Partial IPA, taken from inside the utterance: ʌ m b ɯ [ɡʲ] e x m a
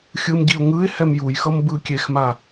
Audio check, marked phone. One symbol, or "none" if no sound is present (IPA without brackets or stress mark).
kʲ